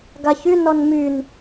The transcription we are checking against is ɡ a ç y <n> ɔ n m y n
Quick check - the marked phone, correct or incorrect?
correct